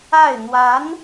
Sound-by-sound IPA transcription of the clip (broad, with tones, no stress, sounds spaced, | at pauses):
a˥˩ ɪ̯ n̪ w a˧˥ n